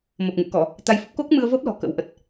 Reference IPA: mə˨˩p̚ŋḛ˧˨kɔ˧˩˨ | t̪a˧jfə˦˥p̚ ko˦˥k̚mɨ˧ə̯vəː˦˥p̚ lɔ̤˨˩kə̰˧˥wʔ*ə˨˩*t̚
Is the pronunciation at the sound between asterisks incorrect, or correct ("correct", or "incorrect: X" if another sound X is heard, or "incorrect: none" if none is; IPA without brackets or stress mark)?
correct